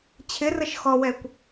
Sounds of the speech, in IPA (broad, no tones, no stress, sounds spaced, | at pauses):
t͡ɕʰ ɪ r ə ʃ x ɔ w ɛ kʷ